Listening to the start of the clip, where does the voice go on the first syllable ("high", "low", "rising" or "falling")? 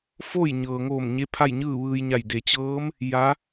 falling